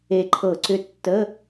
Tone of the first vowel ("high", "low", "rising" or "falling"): low